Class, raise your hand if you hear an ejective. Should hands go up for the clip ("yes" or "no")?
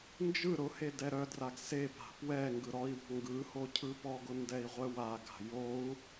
no